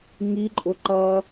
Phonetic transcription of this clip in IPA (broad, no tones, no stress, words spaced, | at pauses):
ŋiǃʼʊ ǃʌ